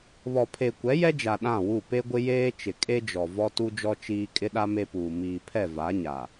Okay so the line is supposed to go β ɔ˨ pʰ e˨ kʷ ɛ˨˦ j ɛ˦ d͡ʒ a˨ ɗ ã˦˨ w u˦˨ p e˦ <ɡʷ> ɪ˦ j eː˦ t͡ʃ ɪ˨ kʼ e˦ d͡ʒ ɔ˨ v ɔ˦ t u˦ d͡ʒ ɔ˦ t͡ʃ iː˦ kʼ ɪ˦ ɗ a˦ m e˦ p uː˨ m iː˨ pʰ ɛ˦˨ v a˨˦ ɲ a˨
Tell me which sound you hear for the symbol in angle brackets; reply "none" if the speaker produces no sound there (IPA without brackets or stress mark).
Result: ɡʷ